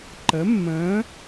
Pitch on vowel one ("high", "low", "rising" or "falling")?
rising